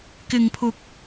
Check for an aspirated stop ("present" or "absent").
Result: present